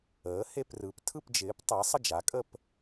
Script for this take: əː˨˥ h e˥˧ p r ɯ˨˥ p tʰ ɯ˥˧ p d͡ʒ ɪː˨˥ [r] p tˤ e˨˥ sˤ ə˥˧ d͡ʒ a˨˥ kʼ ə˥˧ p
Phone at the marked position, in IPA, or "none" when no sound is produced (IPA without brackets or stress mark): none